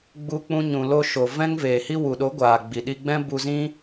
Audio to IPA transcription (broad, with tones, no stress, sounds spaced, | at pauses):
ɡ͡b u˧ k͡p ũ˧ ɲ ũ˨ l o˧ ʃ o˨ v ɛ̃˦ ŋ v eː˨ h i˦ w u˨ ɗ o˨˦ ɡʷ aː˨ ɡ͡b i˨ ɗ i˧ ɡ͡b ɛ̃˦ b u˧ z ĩ˦